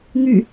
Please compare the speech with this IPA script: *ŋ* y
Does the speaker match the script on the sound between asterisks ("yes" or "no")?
yes